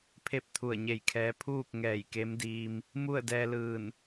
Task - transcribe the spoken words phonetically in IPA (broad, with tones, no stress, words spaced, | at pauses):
pʰe˥˨p̚t̪ʰu˧˩ə̯ɲe˧˩jkʰɛː˧˥ pʰuː˥˨k̚ ŋɛː˧˩jke˧˥mdiː˧m | mu˥˨ə̯ dɛː˧lɯː˧˩n